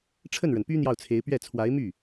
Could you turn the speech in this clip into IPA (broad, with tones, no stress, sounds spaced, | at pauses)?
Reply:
ʈ͡ʂʰ ə˥˩ n ɻ ə˩ n p y˥ n̪ j ɑ˥˩ ʊ̯ t͡sʰ e˧˥ ɪ̯ p ɥ ɛ˥˩ t͡sʰ w a˧˥ ɪ̯ m y˥˩